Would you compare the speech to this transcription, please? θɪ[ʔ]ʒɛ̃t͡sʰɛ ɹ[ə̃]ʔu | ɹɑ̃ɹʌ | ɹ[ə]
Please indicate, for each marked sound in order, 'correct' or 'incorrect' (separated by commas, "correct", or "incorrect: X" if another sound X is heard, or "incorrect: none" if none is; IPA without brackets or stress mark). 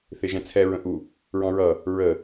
incorrect: none, correct, correct